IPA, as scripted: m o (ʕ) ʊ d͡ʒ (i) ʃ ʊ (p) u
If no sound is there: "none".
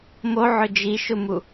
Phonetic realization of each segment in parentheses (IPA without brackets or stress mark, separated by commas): ʕ, i, m